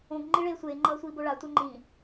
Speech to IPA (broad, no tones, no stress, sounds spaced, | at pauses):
õ ɡ ŋ͡ǃ i ɭ eː sʷ eː ŋ͡ǃ ʌː sʷ iː b o ɭ a tʷ ɛ ŋ͡ǃ ĩ